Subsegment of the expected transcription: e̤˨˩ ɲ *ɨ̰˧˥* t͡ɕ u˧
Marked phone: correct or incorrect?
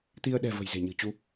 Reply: incorrect